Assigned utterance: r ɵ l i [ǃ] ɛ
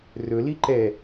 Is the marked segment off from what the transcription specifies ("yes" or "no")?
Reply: no